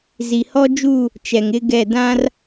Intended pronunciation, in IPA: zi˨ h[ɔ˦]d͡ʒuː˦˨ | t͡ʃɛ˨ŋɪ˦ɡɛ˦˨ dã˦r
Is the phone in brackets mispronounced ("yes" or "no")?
no